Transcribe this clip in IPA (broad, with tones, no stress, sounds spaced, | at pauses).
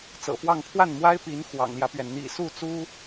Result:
t͡s ɤ̰˨˩ f w ɑ˥˧ ŋ pʰ w a˥˩ n m w a˥ ɪ̯ p i˧˥ n x w ɑ̰˨˩ ŋ l j ä˦ p ɥ ɛ˩ n n̪ ḭ˨˩ s u˥˩ t͡s u˥